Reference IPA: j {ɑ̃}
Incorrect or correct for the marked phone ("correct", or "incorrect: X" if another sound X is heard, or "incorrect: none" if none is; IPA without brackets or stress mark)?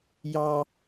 incorrect: ɑ